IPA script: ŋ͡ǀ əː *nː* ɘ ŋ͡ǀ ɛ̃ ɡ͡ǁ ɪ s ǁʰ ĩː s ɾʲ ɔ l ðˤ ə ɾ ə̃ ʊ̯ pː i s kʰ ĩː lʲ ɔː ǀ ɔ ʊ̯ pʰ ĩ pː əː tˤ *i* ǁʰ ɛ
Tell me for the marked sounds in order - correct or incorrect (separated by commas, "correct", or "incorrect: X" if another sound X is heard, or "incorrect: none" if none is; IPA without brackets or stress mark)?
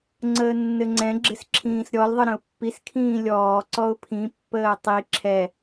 correct, correct